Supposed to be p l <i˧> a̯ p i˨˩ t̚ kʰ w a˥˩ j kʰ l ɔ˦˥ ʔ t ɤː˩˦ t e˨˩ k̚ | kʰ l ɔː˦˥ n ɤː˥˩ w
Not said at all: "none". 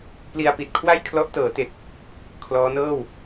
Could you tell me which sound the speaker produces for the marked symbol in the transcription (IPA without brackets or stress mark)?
i˧